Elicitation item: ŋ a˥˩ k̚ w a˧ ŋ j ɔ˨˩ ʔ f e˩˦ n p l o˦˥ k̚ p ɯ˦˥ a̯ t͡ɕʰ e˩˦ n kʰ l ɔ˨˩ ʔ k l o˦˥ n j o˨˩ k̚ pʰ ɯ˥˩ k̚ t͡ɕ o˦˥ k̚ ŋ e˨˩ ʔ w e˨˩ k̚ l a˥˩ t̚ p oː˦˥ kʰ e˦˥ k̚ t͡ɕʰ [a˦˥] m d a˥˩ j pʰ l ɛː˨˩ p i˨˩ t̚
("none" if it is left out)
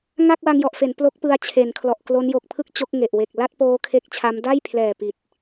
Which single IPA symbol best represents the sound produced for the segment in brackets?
a˦˥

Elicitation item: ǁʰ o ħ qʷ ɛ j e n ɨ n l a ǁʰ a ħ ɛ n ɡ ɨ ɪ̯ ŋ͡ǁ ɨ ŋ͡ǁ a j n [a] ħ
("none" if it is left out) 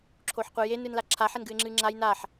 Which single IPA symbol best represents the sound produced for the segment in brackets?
a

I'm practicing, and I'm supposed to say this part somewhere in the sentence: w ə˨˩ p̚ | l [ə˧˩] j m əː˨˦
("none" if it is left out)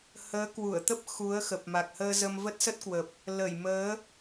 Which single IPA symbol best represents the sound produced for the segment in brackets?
ə˧˩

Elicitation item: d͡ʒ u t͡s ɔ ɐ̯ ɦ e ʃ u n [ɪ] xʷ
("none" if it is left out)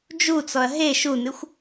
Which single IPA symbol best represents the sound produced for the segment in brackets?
ɪ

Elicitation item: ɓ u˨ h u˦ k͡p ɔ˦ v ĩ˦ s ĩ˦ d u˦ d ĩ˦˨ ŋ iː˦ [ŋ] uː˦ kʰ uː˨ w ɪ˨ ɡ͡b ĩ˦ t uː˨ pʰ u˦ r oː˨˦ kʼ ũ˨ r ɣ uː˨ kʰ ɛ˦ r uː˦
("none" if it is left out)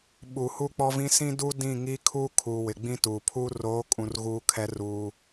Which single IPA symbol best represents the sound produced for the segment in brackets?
kʰ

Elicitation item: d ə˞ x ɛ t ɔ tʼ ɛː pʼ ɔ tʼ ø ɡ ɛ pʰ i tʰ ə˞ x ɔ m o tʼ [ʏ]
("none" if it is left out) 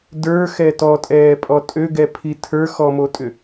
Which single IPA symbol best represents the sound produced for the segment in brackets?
ʏ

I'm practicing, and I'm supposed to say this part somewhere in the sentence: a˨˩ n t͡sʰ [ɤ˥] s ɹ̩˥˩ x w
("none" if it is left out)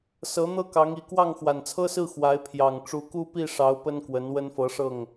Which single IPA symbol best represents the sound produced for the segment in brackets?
ɤ˥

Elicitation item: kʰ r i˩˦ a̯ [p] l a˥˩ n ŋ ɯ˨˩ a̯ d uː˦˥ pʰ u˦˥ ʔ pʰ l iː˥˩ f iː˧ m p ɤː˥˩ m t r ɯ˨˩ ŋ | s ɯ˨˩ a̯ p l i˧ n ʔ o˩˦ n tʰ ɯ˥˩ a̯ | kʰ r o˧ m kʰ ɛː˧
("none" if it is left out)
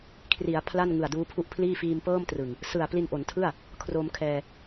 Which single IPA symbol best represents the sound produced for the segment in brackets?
pʰ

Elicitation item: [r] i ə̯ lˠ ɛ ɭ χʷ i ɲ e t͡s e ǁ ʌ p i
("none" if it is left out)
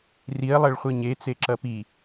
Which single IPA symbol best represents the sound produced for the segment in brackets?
r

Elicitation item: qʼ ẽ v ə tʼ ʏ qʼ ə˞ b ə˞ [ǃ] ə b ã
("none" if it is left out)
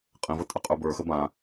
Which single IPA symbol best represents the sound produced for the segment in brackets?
x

